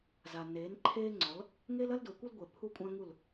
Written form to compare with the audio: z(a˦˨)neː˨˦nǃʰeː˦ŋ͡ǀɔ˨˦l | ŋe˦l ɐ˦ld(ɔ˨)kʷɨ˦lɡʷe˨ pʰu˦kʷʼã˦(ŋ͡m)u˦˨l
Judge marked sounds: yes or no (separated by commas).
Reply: no, no, no